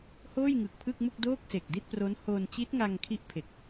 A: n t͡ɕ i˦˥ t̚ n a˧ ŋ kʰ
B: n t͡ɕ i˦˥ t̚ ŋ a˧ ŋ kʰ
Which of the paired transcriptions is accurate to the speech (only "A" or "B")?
B